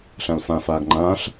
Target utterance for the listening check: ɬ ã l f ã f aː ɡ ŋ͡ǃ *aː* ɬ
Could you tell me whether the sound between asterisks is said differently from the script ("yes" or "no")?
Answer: yes